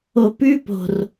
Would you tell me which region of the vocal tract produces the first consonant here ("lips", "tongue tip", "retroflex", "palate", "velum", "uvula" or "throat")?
lips